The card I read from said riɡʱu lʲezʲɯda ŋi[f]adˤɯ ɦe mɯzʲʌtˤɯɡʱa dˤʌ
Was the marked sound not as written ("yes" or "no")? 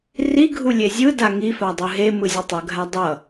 no